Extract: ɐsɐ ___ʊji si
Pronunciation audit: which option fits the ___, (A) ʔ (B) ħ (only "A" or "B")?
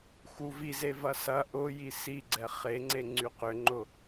A